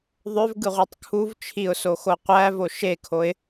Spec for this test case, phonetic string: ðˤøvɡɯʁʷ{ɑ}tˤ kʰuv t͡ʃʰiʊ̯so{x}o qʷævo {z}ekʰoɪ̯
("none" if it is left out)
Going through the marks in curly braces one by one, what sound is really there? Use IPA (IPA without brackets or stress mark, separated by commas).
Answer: ɑ, x, ʃ